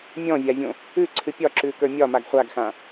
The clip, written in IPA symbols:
mʲ ɔ̃ vʲ a vʲ õ | ʉ ǀʰ ɨ pʲ ɒ ǁ ʉ k ə˞ mʲ ɒ m a ɡ χʷ a ɡ x ã

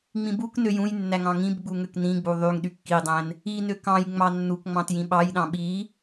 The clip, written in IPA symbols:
ŋ͡m ĩ b u k n ø j ũ j nː æ ŋ ɑ̃ ŋ ĩ b ɡ͡b u ŋ ø k n ĩ ɡ͡b u ðˤ y ŋ ɗ y kː i dˤ æ̃ n | i n ø k ɑ̃ j ŋ͡m ɑ nː u k ŋ͡m ɑ̃ t j ĩ ɓ ɑ j ɗ ɑ̃ ɓ i

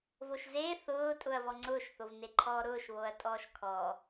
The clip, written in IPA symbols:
v o ʃ z e θ ʊː tʼ ʊ ɐ̯ v ɔ ŋ͡ǀ ʊː ʃ θ o v n e ǃʰ ɔː ɾ ʊː ʃ β o ɐ̯ tʼ ɔː ʃ kʰ ɔ

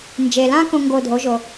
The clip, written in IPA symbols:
n d͡ʒ e˩ l ã˧ k õ˧ ŋ ɡ o˧˩ dʱ o˩˥ ʒ o˩

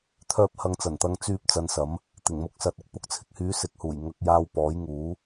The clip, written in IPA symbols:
t̪ʰ œː˥ p̚ h ɐ˧ ŋ t͡s ɐ˨˩ n t̪ ɐ˧ ŋ t͡s yː˧ p̚ t͡s ɐ˨˧ n s ɐ˨˥ m | t̪ ɪ˨˩ ŋ m ʊ˨˥ k̚ s ɐ˨ t̚ ɪ˨˥ k̚ p ʊ˨˥ k̚ t͡sʰ ɪ˨ k̚ h yː˨˥ s ɪ˨˥ k̚ h uː˨˩ j ŋ ɐ˧ k̚ j aː˧ w p ɔː˨˥ j ŋ uː˨˥

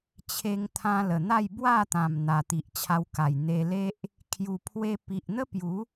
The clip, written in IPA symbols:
t͡ɕʰ e˧ ŋ t̪ʰ ã˧ l ə˨˩ n̪ a˥˧ j b w a˥˧ t̪ ã˨˩ m n̪ a˨˩ t̪ i˨ ʔ t͡ɕʰ a˧ w k a˨˩ j n̪ e˧ l e˦ ʔ | kʰ j u˨˩ pʰ w e˧ p i˨ ʔ n̪ ə˦ p j u˨˦

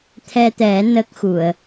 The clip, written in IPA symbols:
t̪ʰ ɛ˧ t̪ ɛ˨˩˦ n ə˦˥ k̚ x u˨˩˨ ə̯

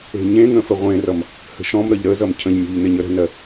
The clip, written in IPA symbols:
e̤ ɲ ẽ ŋ ə̃ f ə ʁʷ ẽ r ʌ m | h ə̤ ʃ ɔ̃ m ɾ ʌ ʎ ɾ ə z ʌ m cʰ ə̃ ʎ mʲ ɔ̤ ʎ n ɪ ɲ ə ɾ ə̤ n ɜ

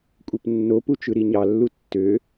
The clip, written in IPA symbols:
kʷʼ e p nː o p u t͡ʃ ɯ ɾ i ɲ ɑ lː u tː ø

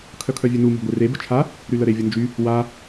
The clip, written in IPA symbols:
kʰ œ kʰ œ vʲ ø n u m o̤ ɡʷ e r e b ə̤ t͡ʃʰ a | ɾ y l ə ɾ e vʲ ə n d͡ʒ y | w a

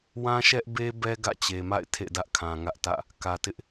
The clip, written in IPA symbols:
w ã˦ ʃ ɛ˦ ʔ b e˦ b ɛ˦ ɡ ä̰˦˨ t͡ɕ e˨ m a̰˦˨ ɪ̯ tʰ ḛ˦˨ d ä˦ ʔ kʰ ã˨ ŋ ä˦ ʔ t ä̰˦˨ | k ä˨ t ɪ˦ ʔ

